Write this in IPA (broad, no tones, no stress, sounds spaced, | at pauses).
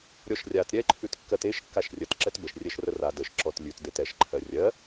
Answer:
ɾʲ ɔ ʃ rʲ a t ɾʲ ɛ ǃʰ ʉ t kː ɜ t e ʃ kː a ʃ rʲ ə t ǁ ɛ t b ə ʃ rʲ ɛ ʃ r ə r a d ə ʃ ǁ ɔ t lʲ ʉ t d e t ɛ ʃ ǃʰ ɜ rʲ ɜ